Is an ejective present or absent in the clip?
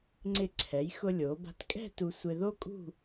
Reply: present